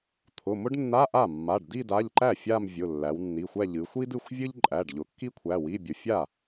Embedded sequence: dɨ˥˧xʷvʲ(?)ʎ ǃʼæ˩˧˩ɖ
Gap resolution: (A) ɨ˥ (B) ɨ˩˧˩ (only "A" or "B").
A